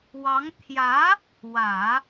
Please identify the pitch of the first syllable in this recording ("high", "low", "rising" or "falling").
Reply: rising